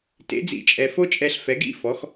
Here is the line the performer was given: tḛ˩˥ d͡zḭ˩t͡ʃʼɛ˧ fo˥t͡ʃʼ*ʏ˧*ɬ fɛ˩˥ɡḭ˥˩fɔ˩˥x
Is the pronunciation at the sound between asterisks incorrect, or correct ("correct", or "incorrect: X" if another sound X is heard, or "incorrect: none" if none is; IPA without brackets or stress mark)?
incorrect: ɛ˧